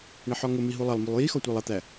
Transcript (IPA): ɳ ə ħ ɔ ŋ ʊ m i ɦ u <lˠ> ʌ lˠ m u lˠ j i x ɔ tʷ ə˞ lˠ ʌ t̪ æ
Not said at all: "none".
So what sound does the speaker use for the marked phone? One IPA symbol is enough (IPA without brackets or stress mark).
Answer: lˠ